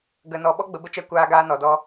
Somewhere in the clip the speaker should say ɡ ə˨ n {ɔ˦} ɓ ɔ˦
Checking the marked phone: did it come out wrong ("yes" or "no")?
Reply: yes